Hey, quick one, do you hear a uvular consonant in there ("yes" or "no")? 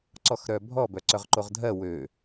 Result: yes